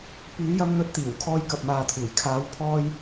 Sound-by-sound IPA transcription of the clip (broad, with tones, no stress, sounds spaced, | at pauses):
p yː˨˧ j ɐ˧ m n̪ ɵ˧ t̚ t̪ iː˨˩ w kʰ ɔː˧ j k ɐ˨ p̚ m aː˨ t̪ʰ uː˨˩ j kʰ aː˨˧ w pʰ ɔː˧ j